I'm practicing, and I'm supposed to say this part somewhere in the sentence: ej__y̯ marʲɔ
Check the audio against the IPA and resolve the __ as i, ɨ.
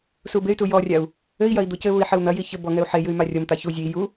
ɨ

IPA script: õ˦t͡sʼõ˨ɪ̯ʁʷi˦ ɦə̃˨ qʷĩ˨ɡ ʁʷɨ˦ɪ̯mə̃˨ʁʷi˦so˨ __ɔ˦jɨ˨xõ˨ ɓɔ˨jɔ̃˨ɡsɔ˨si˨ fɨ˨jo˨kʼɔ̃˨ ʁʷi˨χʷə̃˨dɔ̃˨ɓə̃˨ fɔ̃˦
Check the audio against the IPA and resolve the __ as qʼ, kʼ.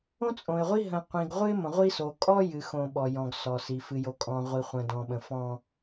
kʼ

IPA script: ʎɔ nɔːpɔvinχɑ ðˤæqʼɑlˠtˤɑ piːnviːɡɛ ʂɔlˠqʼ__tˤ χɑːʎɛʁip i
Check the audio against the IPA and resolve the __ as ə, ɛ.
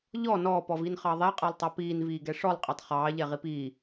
ɛ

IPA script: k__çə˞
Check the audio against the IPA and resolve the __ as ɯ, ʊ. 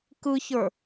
ɯ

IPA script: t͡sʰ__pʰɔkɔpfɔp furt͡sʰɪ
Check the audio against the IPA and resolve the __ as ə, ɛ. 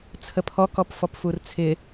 ə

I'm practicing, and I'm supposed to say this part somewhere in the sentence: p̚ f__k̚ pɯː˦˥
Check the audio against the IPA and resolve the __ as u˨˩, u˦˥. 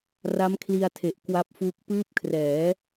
u˦˥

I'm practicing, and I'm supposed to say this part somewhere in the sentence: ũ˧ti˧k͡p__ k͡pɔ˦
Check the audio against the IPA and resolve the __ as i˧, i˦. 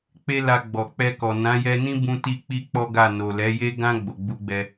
i˧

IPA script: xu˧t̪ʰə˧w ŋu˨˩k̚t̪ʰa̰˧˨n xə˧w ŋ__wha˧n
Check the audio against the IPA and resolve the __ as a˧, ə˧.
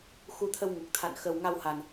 a˧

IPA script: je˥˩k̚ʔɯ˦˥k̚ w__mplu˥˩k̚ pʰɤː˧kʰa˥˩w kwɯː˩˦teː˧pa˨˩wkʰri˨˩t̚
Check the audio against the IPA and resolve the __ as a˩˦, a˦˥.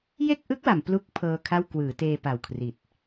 a˩˦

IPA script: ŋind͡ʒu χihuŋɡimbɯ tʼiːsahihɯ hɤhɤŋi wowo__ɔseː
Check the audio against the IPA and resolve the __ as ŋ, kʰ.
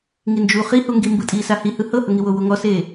ŋ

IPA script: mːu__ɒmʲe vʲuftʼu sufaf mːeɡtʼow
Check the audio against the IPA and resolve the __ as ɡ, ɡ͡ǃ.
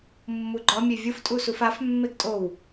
ɡ͡ǃ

